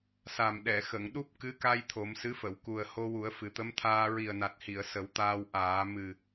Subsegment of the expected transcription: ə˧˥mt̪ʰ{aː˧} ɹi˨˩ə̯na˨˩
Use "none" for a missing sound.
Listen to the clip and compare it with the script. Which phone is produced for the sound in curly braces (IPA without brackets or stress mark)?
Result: aː˧